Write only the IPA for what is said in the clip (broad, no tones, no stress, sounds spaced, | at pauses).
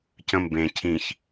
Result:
c ə̃ m b ẽ cʰ ĩ ç